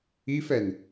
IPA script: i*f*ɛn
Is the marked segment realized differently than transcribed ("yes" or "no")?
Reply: no